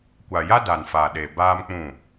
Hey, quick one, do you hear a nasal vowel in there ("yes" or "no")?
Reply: yes